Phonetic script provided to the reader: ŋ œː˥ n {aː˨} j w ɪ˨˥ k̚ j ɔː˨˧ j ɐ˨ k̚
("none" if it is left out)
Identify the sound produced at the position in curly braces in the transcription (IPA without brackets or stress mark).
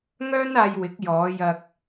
aː˧